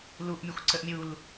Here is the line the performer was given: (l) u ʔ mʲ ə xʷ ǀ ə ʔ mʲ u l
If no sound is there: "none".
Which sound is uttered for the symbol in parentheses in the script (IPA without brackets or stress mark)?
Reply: l